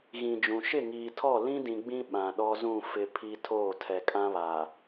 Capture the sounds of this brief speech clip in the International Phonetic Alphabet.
ɣ ĩ˨ d͡ʒ ũ˨ ʃ ɪ˦˨ ŋ iː˨ tʰ ɔ˦˨ l ĩ˦ d ĩ˨ ɡ͡b ĩ˦ ɓ ã˨ ɗ ɔ˦ z ũ˦˨ f ɪ˦ pʰ i˦ tʰ oː˦˨ tʰ ɛ˨ kʼ ã˦ β aː˨

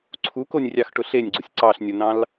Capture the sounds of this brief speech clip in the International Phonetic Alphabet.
ǀʰ u k o nʲ rʲ ɑ x ʈ ʊ ɬ e nʲ ɡ͡ǀ o sʲ ǀ ɑ ɬ nʲ o n ɑ̃ l

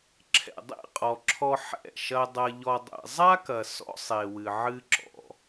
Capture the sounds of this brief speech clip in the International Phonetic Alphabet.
ǁʰ ɛ̰˨ dˤ ḛ˦˨ qʼ ɔ˨ ǁʰ ɔ˧ ħ ɛ̰˦˨ ʃ ɐ˧ dˤ ɐ˧ ʎ ɔ˧ dˤ ɛ̰˨ zˤ a˦ k ɐ˨ s ɔ̰˦ sˤ e˨ w ɨ˨ ʕ ɨ˦ ǁ ɔ̰˧

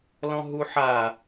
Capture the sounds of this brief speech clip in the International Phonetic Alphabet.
l ɔ̃ ɦ u ħ a

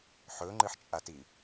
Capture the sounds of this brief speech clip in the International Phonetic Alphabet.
ħ ɵ ŋ͡ǃ ɨ ħ t͡ʃʼ a t i

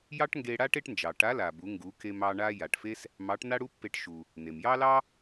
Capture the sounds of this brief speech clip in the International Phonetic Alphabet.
j ɑ˥ ʈ ŋ ɡ e˧ ɽ a˥ ʈ e˥ ʈ n d͡ʒ ɑ˩ ʈ a˧˥ l a˩ b u˩˧ ŋ ɡ u˩˧ k e˧ m ɑ˧ ɳ a˥ j a˩ ʈ f e˥ s | m ɑ˧˥ ʈ n a˥ ɽ u˥ pː e˧ ʈ ʃ u˩ | n e˩ m j ɑ˥ l ɑ˥

